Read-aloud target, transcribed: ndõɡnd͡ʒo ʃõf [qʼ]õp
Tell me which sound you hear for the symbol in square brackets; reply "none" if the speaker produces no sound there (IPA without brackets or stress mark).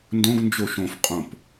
qʼ